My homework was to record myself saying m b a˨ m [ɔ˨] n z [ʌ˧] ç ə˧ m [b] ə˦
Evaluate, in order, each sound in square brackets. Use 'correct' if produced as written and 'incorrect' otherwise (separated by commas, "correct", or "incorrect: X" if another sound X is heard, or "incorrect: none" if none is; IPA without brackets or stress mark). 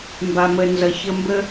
incorrect: ə˨, incorrect: ʌ˨, correct